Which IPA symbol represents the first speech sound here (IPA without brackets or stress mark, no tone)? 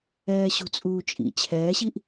ɛː